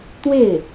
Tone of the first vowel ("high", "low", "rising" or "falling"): falling